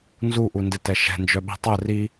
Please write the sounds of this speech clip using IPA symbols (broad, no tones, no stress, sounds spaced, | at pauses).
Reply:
n z u ʔ u n d ɪ t ɛ ʃ ɛ̤ n d͡ʒ œ ɓ i̤ tˤ ɛ r i